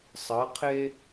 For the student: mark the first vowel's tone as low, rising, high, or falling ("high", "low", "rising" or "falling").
rising